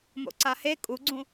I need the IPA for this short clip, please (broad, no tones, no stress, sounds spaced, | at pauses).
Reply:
m o̰ ǀ a h e kʼ u ɡ͡ǀ ũ